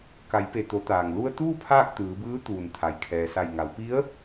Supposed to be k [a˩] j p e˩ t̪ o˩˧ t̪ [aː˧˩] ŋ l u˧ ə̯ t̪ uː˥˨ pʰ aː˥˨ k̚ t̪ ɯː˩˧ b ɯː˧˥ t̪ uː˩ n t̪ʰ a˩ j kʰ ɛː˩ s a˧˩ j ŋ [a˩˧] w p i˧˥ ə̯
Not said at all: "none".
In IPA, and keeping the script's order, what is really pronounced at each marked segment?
a˩˧, aː˩, a˩˧

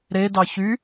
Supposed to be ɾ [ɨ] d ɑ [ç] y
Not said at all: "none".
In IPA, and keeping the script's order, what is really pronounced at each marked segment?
e, ç

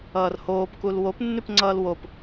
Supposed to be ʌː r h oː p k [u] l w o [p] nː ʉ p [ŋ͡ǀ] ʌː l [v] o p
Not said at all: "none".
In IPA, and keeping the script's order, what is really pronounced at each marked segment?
u, p, ŋ͡ǀ, w

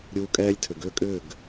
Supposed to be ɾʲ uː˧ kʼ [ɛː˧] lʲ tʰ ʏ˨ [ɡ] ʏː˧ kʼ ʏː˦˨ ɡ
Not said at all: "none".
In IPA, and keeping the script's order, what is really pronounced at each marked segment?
ɛː˦, ɡ

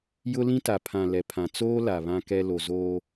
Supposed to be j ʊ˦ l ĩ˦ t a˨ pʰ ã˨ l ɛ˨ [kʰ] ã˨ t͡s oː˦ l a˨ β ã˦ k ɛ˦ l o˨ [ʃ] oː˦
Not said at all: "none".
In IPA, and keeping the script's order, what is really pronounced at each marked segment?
pʰ, z

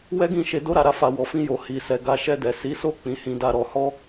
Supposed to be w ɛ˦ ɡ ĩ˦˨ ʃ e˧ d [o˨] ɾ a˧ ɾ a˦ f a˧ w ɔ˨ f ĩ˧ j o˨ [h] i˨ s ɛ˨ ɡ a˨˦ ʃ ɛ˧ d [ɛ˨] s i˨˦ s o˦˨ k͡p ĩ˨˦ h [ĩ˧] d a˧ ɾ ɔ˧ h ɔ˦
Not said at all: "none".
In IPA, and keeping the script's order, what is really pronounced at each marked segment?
o˦, h, ɛ˨, ĩ˧

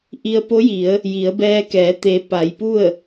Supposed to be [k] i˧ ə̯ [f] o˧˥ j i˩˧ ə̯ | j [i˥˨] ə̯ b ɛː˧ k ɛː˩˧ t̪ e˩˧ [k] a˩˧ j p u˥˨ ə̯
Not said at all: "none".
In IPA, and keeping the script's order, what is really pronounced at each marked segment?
ʔ, p, i˩˧, p

